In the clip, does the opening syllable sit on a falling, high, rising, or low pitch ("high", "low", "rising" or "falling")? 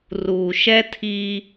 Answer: low